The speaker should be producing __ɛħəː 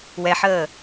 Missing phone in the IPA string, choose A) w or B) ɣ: A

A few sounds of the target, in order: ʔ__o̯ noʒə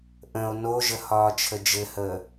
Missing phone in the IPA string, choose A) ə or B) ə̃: B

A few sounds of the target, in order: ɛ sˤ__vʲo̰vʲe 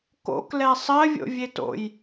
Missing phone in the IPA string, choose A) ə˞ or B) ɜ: B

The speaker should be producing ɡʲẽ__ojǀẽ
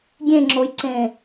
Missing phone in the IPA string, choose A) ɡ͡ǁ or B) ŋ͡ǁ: B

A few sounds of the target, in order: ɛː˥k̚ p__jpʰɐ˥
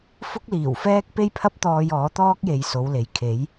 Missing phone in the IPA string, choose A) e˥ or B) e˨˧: A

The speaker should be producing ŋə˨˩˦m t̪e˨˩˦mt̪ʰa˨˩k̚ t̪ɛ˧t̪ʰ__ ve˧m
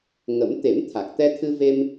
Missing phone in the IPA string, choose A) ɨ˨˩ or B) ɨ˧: B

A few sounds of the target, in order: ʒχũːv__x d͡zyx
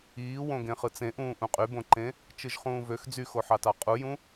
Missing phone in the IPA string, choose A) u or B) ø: B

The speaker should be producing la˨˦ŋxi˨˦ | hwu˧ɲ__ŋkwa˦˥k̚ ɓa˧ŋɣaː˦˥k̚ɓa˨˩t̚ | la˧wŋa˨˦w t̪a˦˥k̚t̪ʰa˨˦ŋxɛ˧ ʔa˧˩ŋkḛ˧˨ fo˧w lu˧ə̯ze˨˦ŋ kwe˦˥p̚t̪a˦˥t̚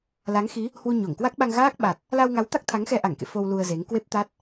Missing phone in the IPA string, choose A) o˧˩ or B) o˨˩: A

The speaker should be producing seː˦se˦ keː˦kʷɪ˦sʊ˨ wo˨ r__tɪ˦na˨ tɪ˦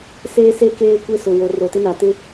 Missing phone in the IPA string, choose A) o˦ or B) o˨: B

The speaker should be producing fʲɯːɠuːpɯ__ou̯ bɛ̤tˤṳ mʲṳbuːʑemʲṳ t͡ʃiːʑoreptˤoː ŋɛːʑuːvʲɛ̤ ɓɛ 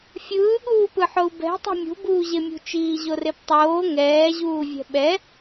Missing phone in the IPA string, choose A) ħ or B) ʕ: A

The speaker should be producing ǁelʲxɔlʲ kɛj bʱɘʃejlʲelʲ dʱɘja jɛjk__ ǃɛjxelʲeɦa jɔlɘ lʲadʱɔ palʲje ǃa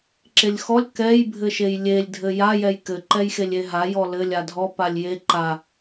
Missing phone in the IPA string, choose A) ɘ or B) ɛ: A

